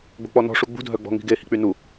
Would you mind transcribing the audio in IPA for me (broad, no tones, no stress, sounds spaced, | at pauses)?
ɡ͡b o̤ k͡p ɔ n ɔ̤ ʂ u ɡ͡b ṳ dʱ œ ɡ͡b ɔ̤ ŋ i̤ ɡ e h i̤ k͡p y n u